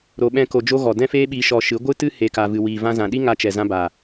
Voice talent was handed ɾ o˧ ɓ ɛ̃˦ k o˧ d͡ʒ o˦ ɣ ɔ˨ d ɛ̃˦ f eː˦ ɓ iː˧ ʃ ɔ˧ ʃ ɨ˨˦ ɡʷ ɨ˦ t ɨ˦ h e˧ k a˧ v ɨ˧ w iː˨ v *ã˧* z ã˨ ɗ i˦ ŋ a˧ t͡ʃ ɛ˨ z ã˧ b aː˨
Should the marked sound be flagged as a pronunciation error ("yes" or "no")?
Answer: no